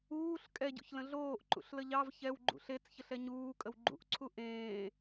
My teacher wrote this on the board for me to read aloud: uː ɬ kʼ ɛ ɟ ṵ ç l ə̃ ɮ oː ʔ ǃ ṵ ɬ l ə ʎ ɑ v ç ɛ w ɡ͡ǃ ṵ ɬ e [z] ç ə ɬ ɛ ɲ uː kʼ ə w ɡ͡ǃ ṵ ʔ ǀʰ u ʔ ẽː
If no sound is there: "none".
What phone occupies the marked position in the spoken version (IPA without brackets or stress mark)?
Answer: t͡s